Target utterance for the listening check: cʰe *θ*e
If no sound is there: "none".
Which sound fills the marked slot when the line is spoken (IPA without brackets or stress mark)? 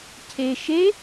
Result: ʃ